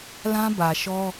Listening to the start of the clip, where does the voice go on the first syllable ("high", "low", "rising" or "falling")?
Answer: high